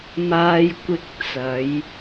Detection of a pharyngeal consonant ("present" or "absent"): absent